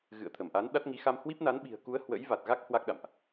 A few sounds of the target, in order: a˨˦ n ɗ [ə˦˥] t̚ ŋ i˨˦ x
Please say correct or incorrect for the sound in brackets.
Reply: incorrect